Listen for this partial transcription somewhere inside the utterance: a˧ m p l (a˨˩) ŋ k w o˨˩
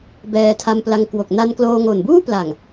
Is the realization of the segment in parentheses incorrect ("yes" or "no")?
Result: yes